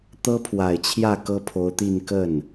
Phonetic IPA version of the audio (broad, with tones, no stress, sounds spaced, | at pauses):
t̪ ɤ˥ pʰ w a˨˩ ɪ̯ t͡ɕʰ j ä˥˩ k ɤ˥ pʰ o˧˥ ʊ̯ t̪ i˥˧ n k ə˥˩ n